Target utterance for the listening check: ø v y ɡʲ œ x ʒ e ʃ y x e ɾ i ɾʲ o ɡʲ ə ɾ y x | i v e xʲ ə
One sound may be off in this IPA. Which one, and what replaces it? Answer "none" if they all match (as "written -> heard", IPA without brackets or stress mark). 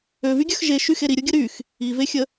none